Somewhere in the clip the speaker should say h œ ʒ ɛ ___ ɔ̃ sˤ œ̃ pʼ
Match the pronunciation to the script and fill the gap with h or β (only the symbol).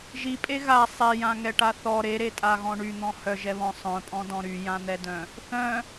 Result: β